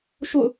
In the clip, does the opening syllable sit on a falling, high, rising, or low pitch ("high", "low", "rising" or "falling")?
falling